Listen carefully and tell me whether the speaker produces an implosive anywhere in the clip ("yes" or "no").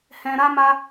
no